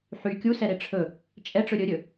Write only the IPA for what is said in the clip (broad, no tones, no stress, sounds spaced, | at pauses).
ħ y kʲ u s ɛ ɾ e ʈ͡ʂʰ ɵ | t͡ʃʼ ɛ ʈ͡ʂ ɵ ɾʲ ɵ ɾʲ ɵ